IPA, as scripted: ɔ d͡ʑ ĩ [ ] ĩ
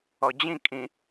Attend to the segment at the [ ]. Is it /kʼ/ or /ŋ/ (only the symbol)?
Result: kʼ